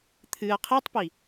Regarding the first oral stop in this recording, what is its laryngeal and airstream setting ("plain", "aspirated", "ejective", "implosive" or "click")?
aspirated